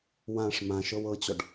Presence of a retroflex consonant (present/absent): present